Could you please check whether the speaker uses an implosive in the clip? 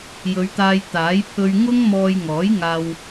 no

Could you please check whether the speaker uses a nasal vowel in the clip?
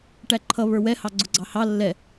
no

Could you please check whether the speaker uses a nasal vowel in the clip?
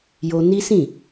yes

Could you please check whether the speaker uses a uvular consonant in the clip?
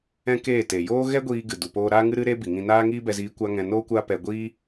no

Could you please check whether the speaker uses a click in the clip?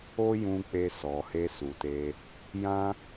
no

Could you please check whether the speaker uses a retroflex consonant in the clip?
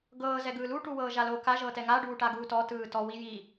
yes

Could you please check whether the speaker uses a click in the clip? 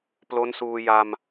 no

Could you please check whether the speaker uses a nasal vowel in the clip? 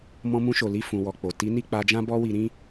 yes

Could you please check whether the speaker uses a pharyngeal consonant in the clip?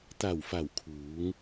no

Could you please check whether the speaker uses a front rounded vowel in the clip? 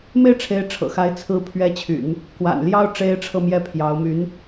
yes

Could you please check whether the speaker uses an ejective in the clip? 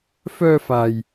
no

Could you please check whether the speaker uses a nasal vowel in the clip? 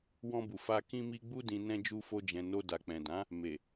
yes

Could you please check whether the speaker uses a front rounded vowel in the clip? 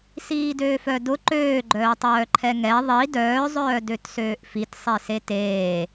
yes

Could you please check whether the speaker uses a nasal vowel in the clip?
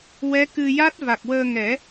no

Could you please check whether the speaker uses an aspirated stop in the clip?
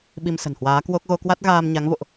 no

